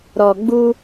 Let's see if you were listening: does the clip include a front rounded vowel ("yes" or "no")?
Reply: no